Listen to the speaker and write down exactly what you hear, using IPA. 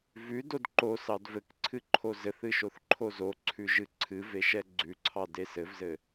vʉdod ǃosɑd vɘkǀʰɨ ǃʰozɘθɨ ʃoθǃʰozoǀʰʉ ʒɨǀʰɨve ʃɛɡ͡ǀʉǀʰɑ desɘvzɘ

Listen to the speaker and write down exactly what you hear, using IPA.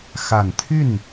xa˨˩nt̪ʰy˥˩n

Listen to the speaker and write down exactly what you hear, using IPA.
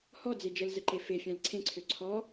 hɔd͡ze d͡ʒəlzəǃe fefʲãl ǀʰẽǀʰø ǀʰɔ

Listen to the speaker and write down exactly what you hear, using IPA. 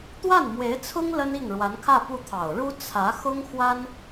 t̪wa˥˩nmwe˧˥ɪ̯t͡sʰʊ˥ŋ lə˥ni˥˩ŋ ɻwa˧˥nkʰä˥˧ pu˥˩t̪ʰɑ˨˩ʊ̯ ɻu˥ t͡sʰä˧˥ xʊ˥ŋxwa˥n

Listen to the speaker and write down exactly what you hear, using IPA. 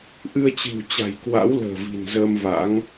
ʔɨ˧ə̯t͡ɕɨ̤˨˩wt͡ɕa̤˨˩j kwa̰˧˥wlə̤ː˨˩ vi̤˨˩nzəː˧mva̰˧˥ŋ

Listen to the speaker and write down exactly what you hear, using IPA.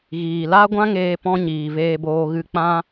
ɣiː˨la˦ ɡʷã˦ŋeː˧pɔ̃˧ ɲiː˨veː˧boː˧ ɣɨ˧k͡pã˦

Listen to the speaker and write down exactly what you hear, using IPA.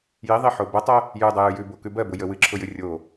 jiðˤiħo bətˤɜ | jʉdˤəjʉ jʉbo kʉbɜbʊ jəwɨǁʰʊjɨ rʲo

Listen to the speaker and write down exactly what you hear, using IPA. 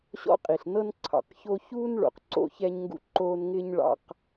ɕɔ̰˦qʼi˩ɬnɤ˥n ǀʰɑ̰˩qço˦çuː˥nɭo̰˩q ǀo̰˥çɛ˥ɲŋɡṵ˥ ǃoː˦nŋɪː˥ɲ ɭɑ̰˦q

